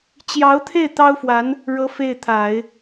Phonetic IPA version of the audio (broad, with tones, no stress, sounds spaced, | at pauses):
t͡ɕ j ɑ˧˥ ʊ̯ t̪ʰ e˥˩ ɪ̯ t̪ ɑ˥ ʊ̯ f w a˧˥ n | ɻ ɤ˧˥ f e˥˩ ɪ̯ t̪ʰ a˨˩˦ ɪ̯